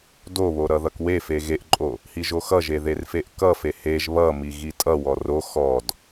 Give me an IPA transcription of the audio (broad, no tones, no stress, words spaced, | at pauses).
doβo ɾʌðʌkwefe ɣeʔǃʼo | hiʒoxʌʒe ðerfeʔkʌfe heʒ βʌmi ɣitʼʌwɔ ro xɔd